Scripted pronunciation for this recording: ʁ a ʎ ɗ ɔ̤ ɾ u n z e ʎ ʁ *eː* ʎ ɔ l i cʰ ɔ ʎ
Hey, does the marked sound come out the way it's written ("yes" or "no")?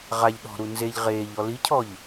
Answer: yes